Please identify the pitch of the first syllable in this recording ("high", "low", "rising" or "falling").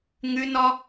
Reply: high